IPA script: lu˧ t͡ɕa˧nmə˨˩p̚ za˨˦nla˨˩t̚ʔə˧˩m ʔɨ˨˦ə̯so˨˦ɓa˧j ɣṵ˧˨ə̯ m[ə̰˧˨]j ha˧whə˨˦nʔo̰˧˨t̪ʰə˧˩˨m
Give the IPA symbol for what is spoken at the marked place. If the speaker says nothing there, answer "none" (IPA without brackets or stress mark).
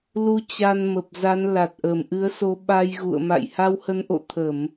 a̰˧˨